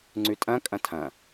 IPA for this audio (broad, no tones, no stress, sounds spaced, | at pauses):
ŋ͡ǀ ʉ tʼ ɐ̃ kʼ ɐ̃ tʰ ɐ̃